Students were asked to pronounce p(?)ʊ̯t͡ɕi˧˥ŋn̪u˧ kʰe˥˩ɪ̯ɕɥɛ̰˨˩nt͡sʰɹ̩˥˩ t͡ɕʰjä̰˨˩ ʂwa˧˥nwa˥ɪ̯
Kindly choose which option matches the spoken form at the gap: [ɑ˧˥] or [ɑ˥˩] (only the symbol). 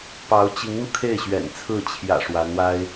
ɑ˧˥